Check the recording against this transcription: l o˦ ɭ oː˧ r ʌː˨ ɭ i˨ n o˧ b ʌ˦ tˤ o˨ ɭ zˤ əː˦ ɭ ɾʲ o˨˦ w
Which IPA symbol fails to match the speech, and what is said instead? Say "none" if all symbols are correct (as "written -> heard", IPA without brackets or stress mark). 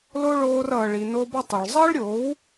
none